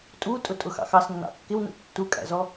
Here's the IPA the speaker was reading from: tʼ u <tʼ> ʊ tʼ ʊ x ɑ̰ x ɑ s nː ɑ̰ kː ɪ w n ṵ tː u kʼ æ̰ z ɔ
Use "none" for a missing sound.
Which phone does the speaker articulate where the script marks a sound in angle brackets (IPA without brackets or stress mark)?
tʼ